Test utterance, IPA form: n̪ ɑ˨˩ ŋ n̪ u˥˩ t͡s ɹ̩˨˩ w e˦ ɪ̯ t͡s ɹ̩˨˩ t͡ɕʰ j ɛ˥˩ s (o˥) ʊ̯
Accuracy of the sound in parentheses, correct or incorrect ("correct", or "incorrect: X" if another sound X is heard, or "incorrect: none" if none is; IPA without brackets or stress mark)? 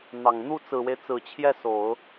incorrect: o˨˩˦